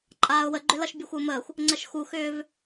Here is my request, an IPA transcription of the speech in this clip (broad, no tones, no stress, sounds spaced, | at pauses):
ǃʼ aː ʊ̯ w ə ɡ͡ǃ ʏ l ʌ ʃ bʲ u xʷ ə ʊ̯ m əː xʷ | ŋ͡ǀ ə ʃ x u x ʏː v